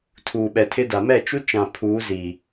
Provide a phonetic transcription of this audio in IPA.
tʰ uː˨ ɓ ɛ˨ tʰ ɪ˦ d a˨ m ɛ˦˨ t͡ʃ u˦ t͡ʃ ã˨ pʰ uː˨˦ z iː˨

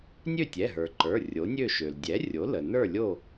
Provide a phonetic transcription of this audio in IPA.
nʲ ø˥˨ tʲ ɛ˩˧˩ ɦ ə˞˩ ǃ ə˞˩˧˩ rʲ o˩˥ nʲ ø˥˨ ʃ ø˩ l dʲ ɛ˩˥ rʲ o˩˥ l ə˩ n ə˞˥˨ lʲ o˥˨

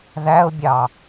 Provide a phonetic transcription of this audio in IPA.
ð æ ʊ̯ bʲ ɑ

